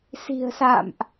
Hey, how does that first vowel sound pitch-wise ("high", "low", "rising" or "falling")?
low